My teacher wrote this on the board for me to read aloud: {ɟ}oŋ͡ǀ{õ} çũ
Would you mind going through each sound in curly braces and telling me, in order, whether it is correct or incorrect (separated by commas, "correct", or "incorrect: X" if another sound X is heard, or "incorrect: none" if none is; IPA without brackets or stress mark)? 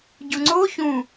correct, incorrect: o